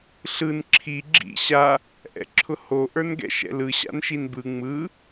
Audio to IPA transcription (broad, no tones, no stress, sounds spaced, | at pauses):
ɬ ɯ n ǁʰ i ɡ͡ǁ ḭ ɕ a | ʔ ɛ̰ ǁʰ ʊ h o ʔ ə˞ n ɡ ɛ̰ ʃ ɛ̰ l ɯ ɕ a̰ n ʃ i n b ɯ ŋ͡m ɯ